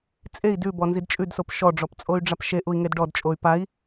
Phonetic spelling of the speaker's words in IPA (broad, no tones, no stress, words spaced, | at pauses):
t͡sʼei̯ dʉbɔnzid t͡ʃʼʉdsop ʃɔɖ͡ʐɔpt͡sʼoy̯ɖ͡ʐap ʃeʔui̯ŋed ɖɔdt͡ʃʼoy̯ pai̯